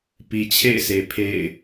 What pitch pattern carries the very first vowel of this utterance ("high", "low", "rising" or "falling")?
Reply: low